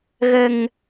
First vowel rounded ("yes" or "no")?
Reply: no